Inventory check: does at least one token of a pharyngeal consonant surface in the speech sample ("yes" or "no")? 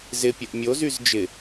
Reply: no